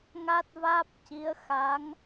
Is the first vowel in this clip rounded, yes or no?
no